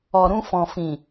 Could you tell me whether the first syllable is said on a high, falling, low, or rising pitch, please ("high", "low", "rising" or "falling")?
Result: low